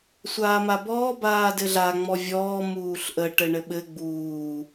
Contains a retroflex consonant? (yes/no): yes